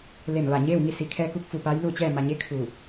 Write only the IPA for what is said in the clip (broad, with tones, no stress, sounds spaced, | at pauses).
l e˧˩ m ʋ a˧˩ ɲ eː˥˨ w ŋ i˥˨ s i˩˧ kʰ ɛː˧ k u˧˥ k̚ f u˩ p a˧˥ j l u˥˨ t͡ɕ ɛː˥˨ m a˩ ɲ e˧˥ kʰ u˧˩